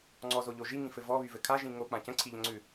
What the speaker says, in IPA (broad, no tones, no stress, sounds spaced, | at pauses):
ŋ͡ǀ ɔ z o ʎ o ʒ i ŋ ĩ f ɘ v ɔ β y v ɘ kʰ a ʒ ĩ ŋ o k͡p ã c ə̃ ǀʰ i ʎ ə̃ ŋ͡ǀ ʉ